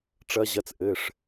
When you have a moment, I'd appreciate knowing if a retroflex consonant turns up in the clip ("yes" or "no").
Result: yes